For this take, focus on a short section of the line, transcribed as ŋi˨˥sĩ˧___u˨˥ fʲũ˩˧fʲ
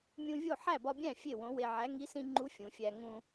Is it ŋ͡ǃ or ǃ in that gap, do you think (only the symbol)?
ŋ͡ǃ